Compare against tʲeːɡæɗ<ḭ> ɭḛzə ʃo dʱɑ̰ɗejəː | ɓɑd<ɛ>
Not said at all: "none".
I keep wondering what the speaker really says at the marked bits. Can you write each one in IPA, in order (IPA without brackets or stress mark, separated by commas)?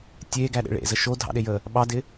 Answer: ḛ, ɪ